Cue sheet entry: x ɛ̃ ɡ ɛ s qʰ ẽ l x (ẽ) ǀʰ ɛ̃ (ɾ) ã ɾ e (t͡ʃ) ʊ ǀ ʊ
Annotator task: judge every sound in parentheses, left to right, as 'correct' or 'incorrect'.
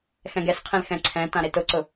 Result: incorrect, incorrect, incorrect

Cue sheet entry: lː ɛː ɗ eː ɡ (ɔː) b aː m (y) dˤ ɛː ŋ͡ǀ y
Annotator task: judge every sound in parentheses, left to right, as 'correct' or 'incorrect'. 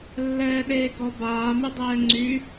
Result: incorrect, correct

